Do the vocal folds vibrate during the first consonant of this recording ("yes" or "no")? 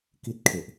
no